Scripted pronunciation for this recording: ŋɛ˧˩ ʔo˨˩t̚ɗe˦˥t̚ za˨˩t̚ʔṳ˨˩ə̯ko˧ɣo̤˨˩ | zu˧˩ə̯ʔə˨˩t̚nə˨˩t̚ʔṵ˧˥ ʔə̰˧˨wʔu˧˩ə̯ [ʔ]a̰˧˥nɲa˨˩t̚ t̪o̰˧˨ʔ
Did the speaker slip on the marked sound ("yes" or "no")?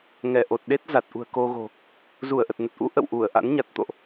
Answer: no